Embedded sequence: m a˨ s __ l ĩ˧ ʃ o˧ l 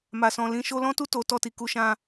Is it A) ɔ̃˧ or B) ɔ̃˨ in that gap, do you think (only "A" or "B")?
B